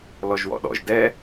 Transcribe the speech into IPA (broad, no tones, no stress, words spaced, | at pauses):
lɔʒwɔ̰ɗɔ̰ʒ dɛ